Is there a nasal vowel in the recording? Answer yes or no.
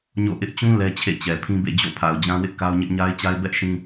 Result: yes